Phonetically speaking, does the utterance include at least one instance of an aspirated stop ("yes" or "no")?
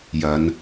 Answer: no